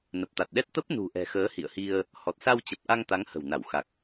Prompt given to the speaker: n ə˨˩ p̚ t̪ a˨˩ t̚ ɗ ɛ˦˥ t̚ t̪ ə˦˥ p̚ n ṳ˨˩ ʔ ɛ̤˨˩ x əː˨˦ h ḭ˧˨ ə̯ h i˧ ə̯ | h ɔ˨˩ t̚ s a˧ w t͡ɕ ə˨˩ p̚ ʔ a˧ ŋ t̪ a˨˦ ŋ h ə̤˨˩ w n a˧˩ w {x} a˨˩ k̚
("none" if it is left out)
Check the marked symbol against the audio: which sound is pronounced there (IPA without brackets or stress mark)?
x